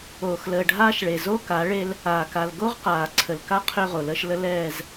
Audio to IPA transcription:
oː˨xləː˨ɖʱaː˦ʃɭe˨ zo˦ka˨˦ɭe˦l | aː˨ka˨l ɡo˦ʁqaː˨ǀʰə˨lka˦ qʰʏː˦ʁo˨ləː˦ʃlə˦ lɛː˨z

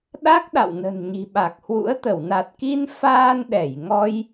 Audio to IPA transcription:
ɗa˦˥k̚ɗa̰˧˨wnə̤˨˩n ɲi̤˨˩ɓa˨˩k̚hwṵ˧˥ə̯ t̪ə˧˩wna˨˩t̚ki˧n faː˧nɗɛ˧˩j ŋɔ˧j

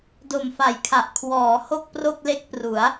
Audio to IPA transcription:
do˨˩mfa˨˩jkʰa˨˩ʔ kʰwɔː˩˦ ho˥˩k̚pro˥˩k̚le˥˩k̚pru˩˦a̯

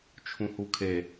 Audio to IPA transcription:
t͡ʃʰũhukʰe

